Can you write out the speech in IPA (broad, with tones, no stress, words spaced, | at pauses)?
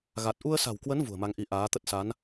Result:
ɣa˨˩t̚ ʔu˧ə̯sa̤˨˩wkwə˨˦n vṳ˨˩ə̯ma˧ŋʔi˧ ʔaː˨˦t̪ə˦˥t̚ sa˨˦n